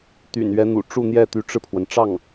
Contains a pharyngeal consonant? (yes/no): no